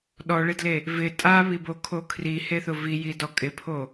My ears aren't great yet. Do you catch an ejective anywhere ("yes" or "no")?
yes